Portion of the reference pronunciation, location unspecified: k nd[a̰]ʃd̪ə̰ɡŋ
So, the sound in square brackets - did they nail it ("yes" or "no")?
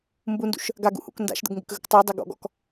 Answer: yes